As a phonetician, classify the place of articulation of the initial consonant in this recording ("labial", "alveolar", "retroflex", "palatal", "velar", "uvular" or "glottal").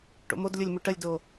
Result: retroflex